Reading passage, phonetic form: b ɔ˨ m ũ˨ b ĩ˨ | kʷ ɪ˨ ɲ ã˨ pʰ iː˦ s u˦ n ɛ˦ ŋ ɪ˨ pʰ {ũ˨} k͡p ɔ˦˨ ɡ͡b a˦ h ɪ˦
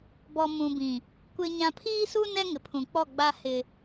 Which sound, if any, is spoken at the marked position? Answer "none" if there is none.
ũ˨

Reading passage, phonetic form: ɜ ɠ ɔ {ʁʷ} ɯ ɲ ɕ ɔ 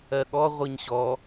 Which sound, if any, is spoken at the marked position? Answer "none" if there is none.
ʁʷ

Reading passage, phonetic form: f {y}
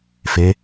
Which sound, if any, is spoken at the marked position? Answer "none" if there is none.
e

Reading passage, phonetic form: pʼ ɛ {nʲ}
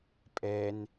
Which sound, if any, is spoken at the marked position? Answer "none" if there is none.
n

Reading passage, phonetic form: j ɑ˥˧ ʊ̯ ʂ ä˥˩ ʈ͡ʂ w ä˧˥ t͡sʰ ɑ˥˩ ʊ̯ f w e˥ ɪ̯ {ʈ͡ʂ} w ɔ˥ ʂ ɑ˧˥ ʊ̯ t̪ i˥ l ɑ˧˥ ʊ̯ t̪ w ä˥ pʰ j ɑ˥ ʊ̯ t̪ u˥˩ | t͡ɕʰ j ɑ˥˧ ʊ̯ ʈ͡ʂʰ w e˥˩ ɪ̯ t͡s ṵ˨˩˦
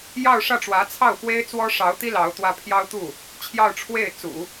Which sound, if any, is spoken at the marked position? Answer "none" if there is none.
t͡s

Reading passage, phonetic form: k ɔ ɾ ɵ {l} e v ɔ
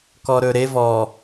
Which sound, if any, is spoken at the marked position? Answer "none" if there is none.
ɾ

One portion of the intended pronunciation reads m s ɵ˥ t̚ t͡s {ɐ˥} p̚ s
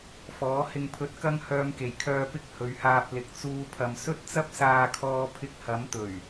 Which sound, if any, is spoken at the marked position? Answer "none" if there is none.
ɐ˥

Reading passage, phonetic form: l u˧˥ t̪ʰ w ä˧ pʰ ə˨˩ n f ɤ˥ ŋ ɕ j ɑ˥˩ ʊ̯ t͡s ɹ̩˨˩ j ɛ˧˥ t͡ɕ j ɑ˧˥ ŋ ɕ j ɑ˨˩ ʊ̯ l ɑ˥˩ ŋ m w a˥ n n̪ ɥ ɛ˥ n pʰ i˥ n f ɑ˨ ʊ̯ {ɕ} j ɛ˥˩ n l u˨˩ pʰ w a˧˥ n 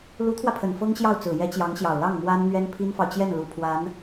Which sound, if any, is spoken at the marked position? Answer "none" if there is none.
t͡ɕ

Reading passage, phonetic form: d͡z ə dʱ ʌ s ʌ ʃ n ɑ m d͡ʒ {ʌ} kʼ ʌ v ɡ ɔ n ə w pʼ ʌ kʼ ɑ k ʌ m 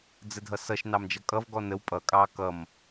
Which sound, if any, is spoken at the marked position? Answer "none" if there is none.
ʌ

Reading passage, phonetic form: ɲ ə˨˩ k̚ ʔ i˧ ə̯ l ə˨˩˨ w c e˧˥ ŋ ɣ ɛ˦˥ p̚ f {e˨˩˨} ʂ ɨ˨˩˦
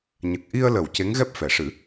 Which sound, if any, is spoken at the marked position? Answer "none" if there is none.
ɛ˨˩˨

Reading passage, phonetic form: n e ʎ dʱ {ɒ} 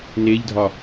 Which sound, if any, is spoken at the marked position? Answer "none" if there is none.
ɒ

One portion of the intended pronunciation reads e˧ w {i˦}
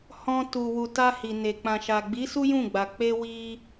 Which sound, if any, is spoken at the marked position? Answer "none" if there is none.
i˧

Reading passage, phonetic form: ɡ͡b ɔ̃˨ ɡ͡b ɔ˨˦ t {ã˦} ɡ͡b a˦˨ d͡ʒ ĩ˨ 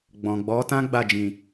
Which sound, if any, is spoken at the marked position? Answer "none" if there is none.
ã˦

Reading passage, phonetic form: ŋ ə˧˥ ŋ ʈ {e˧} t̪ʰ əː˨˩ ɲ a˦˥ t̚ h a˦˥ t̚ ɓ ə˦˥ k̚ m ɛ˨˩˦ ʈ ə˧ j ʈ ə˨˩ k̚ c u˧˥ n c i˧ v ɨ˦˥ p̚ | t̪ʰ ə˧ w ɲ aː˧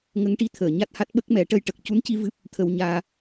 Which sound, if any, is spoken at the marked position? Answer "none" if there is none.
i˧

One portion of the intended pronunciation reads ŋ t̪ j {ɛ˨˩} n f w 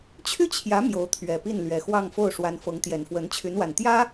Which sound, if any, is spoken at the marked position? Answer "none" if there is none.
ɛ˨˩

